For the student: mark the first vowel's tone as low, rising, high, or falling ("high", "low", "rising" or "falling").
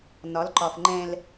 rising